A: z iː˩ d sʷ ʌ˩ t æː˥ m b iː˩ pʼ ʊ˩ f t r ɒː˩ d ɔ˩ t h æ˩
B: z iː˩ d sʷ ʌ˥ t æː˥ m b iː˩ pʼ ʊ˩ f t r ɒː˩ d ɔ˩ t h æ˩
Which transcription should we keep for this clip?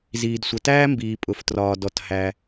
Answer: A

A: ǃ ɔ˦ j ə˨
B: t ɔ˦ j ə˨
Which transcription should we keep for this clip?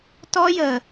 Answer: B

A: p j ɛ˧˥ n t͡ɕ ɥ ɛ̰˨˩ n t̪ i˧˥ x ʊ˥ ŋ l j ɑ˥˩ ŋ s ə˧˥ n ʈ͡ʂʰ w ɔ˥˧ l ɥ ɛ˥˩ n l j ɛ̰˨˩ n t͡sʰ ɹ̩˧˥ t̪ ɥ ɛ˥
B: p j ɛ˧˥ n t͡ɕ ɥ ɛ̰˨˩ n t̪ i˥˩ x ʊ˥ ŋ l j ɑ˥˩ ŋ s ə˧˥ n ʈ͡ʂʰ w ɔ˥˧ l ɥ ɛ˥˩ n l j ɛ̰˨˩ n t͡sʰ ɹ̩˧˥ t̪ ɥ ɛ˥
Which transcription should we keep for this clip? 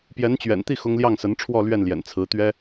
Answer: B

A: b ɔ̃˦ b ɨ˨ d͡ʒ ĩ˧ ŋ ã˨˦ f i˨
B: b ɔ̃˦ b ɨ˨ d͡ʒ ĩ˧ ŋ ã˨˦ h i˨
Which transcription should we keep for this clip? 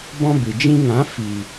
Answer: A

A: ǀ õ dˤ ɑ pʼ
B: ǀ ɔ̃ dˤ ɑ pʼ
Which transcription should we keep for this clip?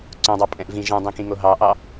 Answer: A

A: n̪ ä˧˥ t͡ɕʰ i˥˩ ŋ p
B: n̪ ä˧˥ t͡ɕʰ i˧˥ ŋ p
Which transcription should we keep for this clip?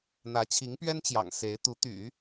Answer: B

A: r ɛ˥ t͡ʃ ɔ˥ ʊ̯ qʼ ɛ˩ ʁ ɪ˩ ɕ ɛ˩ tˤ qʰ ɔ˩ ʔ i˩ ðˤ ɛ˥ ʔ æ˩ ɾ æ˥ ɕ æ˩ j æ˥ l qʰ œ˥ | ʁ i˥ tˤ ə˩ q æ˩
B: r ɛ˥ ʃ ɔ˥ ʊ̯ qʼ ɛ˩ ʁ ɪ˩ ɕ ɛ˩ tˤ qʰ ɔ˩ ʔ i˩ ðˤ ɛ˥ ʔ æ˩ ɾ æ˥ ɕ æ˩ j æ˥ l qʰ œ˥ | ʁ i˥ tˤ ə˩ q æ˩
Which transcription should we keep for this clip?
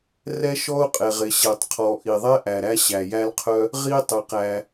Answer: B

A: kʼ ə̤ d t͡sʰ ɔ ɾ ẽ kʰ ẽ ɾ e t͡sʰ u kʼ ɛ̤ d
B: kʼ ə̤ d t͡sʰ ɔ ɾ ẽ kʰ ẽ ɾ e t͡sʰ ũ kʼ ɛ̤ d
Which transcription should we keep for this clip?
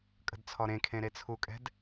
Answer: A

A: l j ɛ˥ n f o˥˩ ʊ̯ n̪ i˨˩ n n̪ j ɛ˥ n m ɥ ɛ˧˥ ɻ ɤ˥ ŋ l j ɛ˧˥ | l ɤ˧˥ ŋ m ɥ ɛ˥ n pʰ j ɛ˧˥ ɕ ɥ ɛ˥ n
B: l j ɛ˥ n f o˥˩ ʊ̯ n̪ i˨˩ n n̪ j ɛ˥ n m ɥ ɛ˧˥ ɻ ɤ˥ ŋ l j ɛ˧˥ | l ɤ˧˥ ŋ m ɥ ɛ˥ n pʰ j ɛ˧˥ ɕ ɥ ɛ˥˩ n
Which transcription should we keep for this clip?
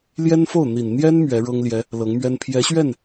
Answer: B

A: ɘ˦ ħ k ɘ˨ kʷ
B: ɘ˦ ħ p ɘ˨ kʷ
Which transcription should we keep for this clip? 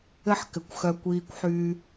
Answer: A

